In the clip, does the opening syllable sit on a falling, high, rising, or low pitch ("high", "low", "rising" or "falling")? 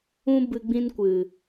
high